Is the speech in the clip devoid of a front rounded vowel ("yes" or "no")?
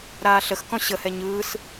yes